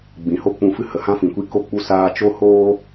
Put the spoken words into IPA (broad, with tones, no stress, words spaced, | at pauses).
ɡ͡bĩ˨ho˦k͡pũ˧fɨ˦ hə˨hã˦fĩ˨kʷi˦ ko˧k͡pu˧ saː˧t͡ʃo˦hoː˦